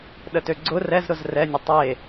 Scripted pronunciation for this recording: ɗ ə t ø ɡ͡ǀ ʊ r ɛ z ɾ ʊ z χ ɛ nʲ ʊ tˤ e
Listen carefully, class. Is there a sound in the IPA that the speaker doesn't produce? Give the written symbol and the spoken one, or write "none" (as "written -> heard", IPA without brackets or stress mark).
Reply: χ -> r